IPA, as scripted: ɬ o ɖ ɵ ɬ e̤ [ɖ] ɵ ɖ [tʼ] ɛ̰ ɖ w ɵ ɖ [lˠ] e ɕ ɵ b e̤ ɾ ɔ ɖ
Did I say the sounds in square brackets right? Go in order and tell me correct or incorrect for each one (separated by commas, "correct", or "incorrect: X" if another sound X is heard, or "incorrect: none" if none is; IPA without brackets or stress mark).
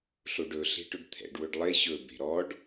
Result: incorrect: ʈ, incorrect: t̪ʰ, correct